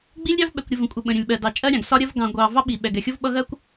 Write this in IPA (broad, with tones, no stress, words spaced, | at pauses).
ɡ͡bi˦lʲɾʲɑ˦v ɓɛ˨kʷɾʲə˨ və̃˨ kʷʼɪ˨ ɓə̃˨ɾʲə̃˨lʲ ɓɜ˨dɑ˨t͡ʃʼɜ˦ɾʲɑ̃˨ɡ sɒ˦ɾʲɜ˦v ɡɑ̃˨ ɡʷɑ˨ vɑ˦ɓi˨ ɓɛ˨ɡɛ˨xʲʊ˦v ɓʌ˦ɣɜ˦kʷ